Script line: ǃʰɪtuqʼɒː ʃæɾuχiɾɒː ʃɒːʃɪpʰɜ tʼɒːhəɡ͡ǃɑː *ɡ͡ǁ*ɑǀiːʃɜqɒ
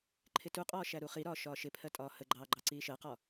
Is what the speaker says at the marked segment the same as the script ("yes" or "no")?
no